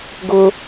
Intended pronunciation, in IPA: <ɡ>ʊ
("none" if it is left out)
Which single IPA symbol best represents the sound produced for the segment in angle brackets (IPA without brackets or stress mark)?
ɡ